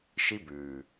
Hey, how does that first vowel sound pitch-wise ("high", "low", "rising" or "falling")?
high